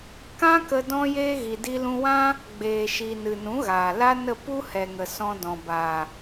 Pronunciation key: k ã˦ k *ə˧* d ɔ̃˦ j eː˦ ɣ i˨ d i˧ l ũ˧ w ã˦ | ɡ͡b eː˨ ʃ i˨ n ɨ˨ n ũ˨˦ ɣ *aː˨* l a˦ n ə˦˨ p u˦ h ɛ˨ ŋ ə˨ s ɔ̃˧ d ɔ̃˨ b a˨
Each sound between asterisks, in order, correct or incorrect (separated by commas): correct, correct